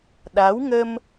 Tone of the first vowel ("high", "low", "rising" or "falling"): rising